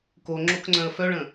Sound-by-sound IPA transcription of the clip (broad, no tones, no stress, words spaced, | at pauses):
koŋ͡ǁokŋ͡ǀœ̃ə̯ fœɭə̃